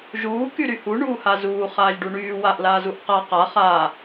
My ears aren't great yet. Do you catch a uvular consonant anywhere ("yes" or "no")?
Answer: yes